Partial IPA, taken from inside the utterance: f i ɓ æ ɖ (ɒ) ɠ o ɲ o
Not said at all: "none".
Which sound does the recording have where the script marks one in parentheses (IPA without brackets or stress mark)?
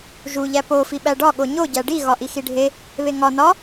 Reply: ɒ